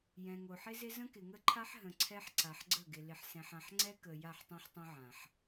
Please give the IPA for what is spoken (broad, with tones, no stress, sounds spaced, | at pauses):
j ɛ̃˨ ŋ o˨ ħ ɪ˦ z ɪ˦ z ə̃˦ k ɪ˨ ŋ ə˦ ǃʰ a˦ ħ ɦ ə̃˨ ǀʰ ɛ˦ ħ ǀ a˨ ħ ɡ͡ǀ ə˦˨ ɡ ɪ˨ l ɪ˨ ħ s ɛ̃˨ ħ ã˨ ħ ŋ͡ǀ ɛ˦ k ə˨ j a˦˨ ħ tˤ ɛ̃˦ ħ tˤ ə̃˦ ʕ ã˨ ħ